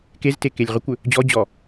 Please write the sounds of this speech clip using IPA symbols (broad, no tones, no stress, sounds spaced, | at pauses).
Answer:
k e z t e k e lʲ ʁ ʏ kʷ ʏ | d͡ʑ ɔ d͡ʑ ɔ